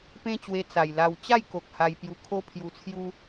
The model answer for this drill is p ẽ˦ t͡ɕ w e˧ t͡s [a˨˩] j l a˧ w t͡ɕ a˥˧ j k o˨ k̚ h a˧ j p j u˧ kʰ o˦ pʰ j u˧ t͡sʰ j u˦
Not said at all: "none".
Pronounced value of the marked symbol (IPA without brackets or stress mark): a˨˩